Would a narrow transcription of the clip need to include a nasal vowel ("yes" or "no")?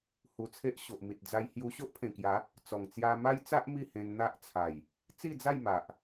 yes